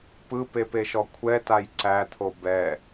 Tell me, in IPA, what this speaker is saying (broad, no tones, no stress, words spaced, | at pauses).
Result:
pɯpepeʃɔ kʷʰɛtaj ǀæt̪ʰo bɛ